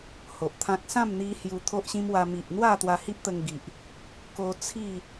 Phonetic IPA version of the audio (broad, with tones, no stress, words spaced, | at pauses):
ho˨ʔt̪ʰã˦k̚ sã˥˧m n̪i˦hju˧ t̪ʰo˦ʔɕĩ˦mwa˧ mi˨ʔn̪wa˥˧ t̪wa˧hi˦p̚t̪ə˧ŋɡi˨ʔ | ko˧t͡sʰi˥˧